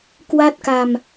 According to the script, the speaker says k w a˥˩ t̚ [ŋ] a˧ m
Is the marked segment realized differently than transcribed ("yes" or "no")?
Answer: yes